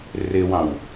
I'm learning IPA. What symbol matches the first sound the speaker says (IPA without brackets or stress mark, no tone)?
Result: r